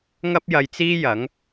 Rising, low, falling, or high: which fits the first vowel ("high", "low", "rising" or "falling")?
high